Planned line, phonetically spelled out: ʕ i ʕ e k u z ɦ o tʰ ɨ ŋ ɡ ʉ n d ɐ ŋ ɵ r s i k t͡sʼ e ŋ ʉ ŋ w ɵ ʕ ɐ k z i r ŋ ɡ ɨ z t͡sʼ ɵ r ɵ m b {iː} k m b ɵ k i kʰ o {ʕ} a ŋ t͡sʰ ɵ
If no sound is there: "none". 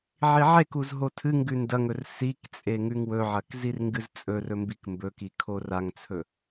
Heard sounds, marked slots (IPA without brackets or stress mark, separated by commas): i, r